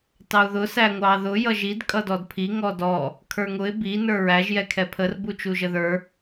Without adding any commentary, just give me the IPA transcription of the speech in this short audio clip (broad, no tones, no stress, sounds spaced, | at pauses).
t ɑ ʊ̯ ð ʊ s æ ŋʷ ɑ ð ʊ j ʌ ʒ i d kʼ ʌ d ɔ d pʰ i ŋ ɔ d ɔ | kʰ ə˞ ŋ ʊ ɪ̯ b i n ə˞ ɹ æ ʒ j ɛ kʰ ɛ pʰ ə r b u t͡ʃ u ʒ ə ð ə˞